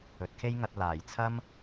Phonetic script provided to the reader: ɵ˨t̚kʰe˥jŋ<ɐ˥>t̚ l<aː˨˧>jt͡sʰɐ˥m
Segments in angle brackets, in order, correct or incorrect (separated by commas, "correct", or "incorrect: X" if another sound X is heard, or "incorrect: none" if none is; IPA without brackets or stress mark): incorrect: ɐ˧, incorrect: aː˨˩